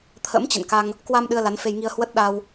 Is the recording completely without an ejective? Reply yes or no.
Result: yes